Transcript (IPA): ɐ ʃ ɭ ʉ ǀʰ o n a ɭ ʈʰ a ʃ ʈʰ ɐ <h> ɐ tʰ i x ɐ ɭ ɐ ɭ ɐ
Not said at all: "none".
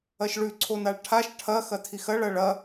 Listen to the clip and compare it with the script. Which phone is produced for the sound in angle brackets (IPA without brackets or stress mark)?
x